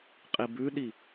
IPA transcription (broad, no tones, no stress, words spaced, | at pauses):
qʼibʉɗi